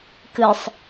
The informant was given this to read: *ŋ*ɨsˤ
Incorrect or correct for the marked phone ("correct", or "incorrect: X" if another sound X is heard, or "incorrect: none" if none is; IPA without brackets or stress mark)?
incorrect: k